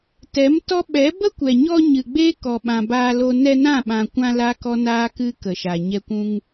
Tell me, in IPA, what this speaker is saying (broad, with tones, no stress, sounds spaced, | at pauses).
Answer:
t ɛ˨˦ m t ɔ˦ ɓ ɛ˨˦ b ə˦ kʷ ɛ˨ ɲ ɔ˧ ɲ ɨ˨ ɡ͡b eː˦ k ɔ˨ ɓ ã˨ b aː˧ l o˧ n ɛ˧ n ã˦˨ ɓ ã˨ kʷ ã˧ l a˦ k ɔ˦ n aː˦ k ɨ˦ k ə˨ ʃ a˨ ɲ ɛ˧ kʷ ũ˧ ŋ